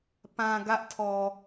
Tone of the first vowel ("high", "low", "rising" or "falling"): low